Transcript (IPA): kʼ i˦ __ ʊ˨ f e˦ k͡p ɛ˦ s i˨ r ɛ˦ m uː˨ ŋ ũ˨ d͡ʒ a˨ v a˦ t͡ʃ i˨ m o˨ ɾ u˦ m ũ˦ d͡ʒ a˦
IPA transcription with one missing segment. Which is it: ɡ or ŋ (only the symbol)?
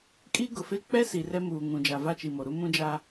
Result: ɡ